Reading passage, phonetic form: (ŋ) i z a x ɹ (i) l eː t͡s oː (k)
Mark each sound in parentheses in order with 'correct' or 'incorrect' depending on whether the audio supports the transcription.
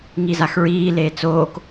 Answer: correct, incorrect: iː, correct

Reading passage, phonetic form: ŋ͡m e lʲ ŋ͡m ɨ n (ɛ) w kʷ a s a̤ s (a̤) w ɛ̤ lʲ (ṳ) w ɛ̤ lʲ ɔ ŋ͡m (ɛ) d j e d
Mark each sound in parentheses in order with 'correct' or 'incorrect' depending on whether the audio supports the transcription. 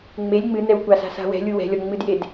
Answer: correct, correct, incorrect: u, incorrect: ɨ

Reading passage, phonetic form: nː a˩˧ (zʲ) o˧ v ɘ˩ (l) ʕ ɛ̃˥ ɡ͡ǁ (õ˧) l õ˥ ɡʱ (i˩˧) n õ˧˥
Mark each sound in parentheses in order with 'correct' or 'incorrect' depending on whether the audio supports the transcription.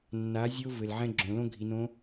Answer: correct, correct, incorrect: õ˩˧, correct

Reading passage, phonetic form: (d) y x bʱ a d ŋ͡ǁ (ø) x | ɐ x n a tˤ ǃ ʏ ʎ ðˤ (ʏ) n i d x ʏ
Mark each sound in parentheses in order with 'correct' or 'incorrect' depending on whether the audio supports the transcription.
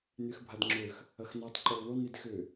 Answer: incorrect: n, correct, incorrect: y

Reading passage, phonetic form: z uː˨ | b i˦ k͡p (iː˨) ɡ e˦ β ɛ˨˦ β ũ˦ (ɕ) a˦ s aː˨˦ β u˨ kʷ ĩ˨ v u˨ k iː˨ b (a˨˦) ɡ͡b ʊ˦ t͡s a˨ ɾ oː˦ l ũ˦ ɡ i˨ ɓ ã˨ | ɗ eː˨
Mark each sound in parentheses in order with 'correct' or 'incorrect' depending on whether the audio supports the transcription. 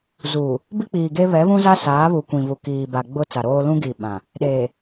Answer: correct, incorrect: z, incorrect: a˨

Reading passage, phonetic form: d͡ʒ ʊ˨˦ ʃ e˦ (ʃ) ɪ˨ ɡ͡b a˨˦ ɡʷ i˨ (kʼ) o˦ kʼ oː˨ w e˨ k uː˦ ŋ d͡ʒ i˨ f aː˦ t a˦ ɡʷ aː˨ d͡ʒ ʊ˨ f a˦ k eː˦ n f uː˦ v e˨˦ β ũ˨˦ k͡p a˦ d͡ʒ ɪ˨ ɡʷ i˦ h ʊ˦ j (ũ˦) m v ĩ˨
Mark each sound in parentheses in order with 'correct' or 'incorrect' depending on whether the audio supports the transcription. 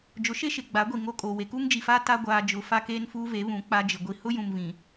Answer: correct, incorrect: ŋ, incorrect: ũ˨

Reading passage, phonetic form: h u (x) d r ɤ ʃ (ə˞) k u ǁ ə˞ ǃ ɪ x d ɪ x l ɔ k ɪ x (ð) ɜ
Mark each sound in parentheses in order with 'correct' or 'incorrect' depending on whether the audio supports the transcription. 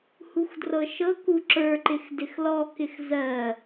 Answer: correct, incorrect: ɤ, incorrect: z

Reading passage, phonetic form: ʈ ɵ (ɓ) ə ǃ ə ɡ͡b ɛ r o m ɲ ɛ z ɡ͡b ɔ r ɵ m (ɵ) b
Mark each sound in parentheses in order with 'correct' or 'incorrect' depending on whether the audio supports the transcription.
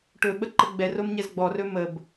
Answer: correct, incorrect: ə

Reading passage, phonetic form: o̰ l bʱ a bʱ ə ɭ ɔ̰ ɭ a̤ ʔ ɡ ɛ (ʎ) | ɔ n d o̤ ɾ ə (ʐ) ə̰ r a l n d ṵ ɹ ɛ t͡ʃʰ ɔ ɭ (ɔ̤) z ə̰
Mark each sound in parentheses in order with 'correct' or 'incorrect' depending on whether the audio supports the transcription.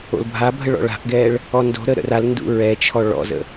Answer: incorrect: ɭ, incorrect: ɾ, incorrect: ɔ̰

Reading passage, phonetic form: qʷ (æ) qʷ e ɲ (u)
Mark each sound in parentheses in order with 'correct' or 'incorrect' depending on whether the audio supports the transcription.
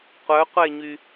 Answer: incorrect: œ, incorrect: y

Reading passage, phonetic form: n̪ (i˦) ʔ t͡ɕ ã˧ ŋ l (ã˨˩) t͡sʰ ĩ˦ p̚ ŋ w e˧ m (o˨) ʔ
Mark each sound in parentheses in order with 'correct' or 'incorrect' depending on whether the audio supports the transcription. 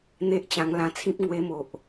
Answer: incorrect: e˦, incorrect: ã˧, correct

